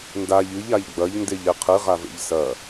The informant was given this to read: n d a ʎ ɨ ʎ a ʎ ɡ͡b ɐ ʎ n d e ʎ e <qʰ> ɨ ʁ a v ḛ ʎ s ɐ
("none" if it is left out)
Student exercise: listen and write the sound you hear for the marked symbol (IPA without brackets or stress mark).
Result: qʰ